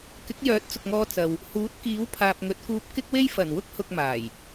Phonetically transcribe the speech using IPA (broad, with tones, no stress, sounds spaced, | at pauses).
k ɪ˨˥ k̚ j œː˨˥ t̚ t͡s ʊ˨ k̚ ŋ ɔː˧ t͡s ɐ˨ w | h uː˨˥ t̚ k iː˨˥ w pʰ aː˨ p̚ ŋ ɵ˨˥ t̚ k uː˧ p̚ k ɪ˥ k̚ w e˥ j f ɐ˨˩ n w ʊ˥ k̚ h ʊ˧ k̚ m aː˨˩ j